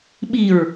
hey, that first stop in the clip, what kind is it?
implosive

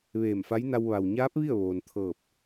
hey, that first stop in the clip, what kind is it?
plain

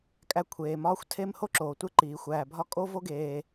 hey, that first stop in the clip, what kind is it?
ejective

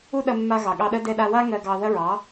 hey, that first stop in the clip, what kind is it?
implosive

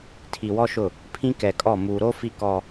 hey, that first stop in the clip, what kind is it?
aspirated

